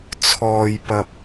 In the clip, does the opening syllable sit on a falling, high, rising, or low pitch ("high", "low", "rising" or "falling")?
low